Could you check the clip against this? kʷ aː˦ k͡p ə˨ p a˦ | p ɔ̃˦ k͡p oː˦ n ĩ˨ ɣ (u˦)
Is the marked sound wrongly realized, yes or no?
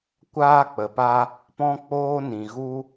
no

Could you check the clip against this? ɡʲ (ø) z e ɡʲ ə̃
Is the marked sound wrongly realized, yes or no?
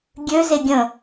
no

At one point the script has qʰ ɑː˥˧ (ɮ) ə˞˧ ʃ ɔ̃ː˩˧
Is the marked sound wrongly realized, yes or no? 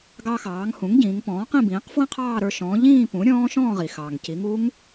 yes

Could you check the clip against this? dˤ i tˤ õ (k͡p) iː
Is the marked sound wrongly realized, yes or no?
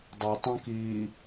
yes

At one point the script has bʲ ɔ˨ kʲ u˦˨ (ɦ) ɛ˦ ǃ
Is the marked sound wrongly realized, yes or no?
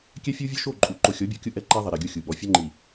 yes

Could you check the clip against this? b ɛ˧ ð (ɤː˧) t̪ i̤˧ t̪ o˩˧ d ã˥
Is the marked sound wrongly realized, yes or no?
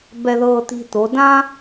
no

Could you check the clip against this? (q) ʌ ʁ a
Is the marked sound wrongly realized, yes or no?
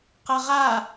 no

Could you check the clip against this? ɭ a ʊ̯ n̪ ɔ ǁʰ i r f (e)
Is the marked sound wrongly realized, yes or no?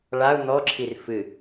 yes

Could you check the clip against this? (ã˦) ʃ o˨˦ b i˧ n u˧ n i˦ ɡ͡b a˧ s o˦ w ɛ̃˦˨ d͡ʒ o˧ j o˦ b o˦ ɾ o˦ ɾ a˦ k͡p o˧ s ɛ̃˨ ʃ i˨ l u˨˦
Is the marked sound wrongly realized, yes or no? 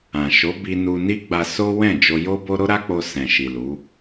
yes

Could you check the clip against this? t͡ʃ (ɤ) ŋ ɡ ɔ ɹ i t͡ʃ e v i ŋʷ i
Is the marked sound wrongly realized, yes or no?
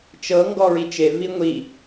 no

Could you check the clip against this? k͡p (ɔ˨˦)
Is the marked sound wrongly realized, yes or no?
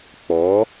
no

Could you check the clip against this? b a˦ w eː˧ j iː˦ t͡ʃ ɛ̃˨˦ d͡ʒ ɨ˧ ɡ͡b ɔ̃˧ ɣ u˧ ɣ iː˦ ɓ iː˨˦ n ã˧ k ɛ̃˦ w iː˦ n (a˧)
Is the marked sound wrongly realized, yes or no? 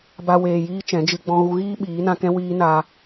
no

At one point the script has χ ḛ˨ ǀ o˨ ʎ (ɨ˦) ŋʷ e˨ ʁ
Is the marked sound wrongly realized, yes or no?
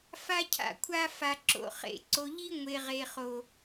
yes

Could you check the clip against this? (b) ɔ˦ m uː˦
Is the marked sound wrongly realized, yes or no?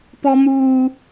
yes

